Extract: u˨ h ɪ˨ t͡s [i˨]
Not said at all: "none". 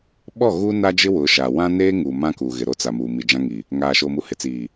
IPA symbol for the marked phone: iː˨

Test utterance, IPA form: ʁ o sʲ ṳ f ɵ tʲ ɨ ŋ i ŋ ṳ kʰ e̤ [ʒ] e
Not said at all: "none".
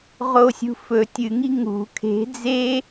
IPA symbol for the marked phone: d͡z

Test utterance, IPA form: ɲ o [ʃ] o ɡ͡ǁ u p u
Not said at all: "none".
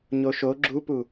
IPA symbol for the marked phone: ʃ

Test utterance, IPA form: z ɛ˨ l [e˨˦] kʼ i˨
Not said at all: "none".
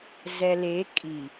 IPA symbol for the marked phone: e˨˦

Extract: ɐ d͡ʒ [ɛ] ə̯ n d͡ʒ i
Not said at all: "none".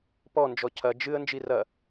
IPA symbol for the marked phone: ɨ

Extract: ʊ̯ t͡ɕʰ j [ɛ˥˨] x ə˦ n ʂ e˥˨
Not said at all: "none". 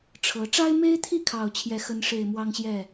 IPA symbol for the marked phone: ɛ˥˨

